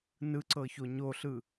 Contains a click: yes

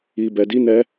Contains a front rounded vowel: no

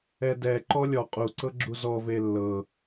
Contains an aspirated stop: no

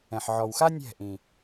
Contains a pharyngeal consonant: yes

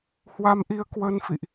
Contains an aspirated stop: no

